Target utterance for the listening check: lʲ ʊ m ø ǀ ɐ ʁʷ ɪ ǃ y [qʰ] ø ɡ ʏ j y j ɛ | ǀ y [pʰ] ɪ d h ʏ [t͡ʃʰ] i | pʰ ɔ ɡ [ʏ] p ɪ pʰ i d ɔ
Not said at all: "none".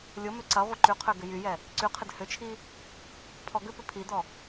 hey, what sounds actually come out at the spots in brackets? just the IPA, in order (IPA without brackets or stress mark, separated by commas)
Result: qʰ, qʰ, t͡ʃʰ, ʏ